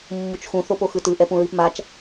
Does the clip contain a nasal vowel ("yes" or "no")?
yes